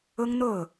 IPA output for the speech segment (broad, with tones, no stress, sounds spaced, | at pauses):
ʊ˥ ŋ n̪ o˥˩ ʊ̯